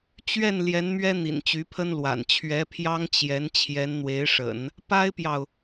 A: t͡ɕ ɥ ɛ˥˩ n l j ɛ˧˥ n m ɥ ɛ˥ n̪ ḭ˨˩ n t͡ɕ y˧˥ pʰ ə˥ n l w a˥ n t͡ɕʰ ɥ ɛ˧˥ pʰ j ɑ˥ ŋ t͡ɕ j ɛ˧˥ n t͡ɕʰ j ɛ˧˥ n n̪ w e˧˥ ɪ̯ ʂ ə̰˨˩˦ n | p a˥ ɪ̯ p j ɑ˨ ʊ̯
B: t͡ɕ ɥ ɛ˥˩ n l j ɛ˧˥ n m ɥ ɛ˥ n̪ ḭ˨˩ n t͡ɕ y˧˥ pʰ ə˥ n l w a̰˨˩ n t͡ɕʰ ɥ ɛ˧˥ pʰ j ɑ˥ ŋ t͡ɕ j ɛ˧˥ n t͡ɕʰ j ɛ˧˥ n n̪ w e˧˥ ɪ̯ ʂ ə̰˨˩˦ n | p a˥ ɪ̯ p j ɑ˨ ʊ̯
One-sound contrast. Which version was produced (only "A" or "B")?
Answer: B